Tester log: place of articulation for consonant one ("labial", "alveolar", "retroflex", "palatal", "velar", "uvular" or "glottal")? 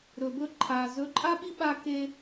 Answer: alveolar